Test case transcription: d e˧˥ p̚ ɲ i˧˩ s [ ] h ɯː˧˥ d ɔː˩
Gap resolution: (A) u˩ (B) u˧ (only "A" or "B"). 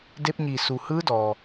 A